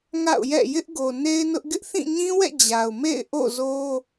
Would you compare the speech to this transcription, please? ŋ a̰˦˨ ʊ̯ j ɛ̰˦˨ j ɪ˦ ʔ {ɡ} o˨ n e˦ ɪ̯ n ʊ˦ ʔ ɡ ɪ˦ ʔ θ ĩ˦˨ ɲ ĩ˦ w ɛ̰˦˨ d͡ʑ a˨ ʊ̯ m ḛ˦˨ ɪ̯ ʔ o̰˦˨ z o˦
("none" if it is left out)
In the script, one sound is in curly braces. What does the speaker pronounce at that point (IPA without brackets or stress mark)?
ɡ